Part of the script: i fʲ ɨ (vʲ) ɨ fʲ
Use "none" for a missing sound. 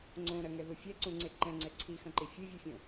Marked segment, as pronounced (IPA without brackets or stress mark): vʲ